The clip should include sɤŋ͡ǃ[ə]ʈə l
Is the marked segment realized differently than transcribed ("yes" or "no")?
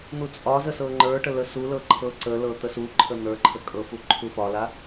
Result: yes